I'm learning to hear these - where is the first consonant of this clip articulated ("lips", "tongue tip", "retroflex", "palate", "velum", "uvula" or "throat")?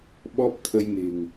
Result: lips